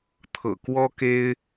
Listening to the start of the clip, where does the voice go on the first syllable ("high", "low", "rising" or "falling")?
low